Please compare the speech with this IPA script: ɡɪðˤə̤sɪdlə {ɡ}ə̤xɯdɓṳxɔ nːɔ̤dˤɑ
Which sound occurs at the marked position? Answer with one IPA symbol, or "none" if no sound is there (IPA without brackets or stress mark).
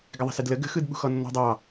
ɡ